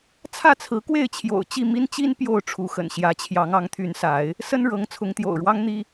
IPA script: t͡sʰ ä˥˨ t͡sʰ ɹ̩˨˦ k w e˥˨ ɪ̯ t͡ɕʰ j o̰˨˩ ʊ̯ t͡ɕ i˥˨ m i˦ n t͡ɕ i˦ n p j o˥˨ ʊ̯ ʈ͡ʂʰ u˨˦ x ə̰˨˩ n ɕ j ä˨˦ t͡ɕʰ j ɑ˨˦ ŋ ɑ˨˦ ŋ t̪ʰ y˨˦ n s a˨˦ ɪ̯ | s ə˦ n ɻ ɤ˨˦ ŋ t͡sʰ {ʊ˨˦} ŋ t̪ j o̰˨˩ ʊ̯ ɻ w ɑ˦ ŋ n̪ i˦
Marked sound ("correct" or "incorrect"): correct